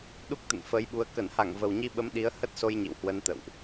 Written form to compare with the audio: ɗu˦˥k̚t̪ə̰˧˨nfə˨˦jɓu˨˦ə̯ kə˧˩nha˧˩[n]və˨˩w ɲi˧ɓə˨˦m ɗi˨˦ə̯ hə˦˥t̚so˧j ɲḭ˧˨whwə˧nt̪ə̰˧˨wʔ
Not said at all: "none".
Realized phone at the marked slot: ŋ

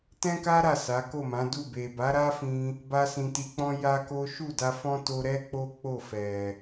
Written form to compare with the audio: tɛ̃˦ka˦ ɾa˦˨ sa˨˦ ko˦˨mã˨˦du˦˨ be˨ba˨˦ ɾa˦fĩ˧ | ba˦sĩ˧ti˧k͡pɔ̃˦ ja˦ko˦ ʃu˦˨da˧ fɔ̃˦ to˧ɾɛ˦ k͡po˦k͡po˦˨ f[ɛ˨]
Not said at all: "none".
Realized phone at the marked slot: ɛ˨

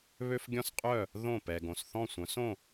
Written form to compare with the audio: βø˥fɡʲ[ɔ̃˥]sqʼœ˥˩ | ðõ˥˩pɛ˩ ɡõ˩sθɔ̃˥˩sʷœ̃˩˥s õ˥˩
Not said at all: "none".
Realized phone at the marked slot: ɔ̃˥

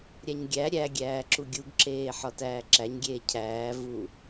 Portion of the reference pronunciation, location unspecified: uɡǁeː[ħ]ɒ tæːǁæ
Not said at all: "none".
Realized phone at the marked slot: ħ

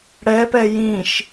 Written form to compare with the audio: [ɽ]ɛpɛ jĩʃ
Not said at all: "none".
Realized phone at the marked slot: ɽ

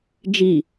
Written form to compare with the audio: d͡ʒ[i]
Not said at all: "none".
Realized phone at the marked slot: i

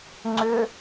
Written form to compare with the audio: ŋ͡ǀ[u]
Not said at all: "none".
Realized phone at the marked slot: ʏ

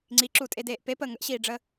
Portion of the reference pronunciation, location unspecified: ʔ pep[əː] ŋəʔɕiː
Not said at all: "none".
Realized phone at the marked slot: əː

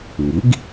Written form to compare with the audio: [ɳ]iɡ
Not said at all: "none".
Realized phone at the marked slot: ŋ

